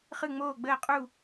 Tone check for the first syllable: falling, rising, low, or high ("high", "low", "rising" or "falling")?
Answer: falling